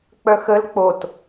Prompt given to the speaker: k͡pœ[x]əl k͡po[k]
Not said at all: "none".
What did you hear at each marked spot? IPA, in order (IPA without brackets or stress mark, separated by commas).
x, t